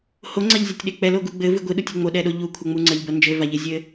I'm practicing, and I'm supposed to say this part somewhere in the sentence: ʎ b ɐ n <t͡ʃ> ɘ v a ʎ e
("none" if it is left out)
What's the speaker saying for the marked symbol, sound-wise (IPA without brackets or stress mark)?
d͡ʒ